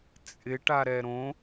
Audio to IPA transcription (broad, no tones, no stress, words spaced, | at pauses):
t͡sʼɪ ʈaɾɛɾõ